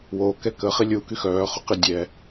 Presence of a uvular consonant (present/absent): present